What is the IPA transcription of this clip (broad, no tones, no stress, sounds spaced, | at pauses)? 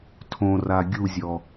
tʰ õ r a ɡʲ u zʲ ɔ